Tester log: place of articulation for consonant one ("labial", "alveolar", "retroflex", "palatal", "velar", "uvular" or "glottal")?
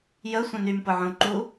palatal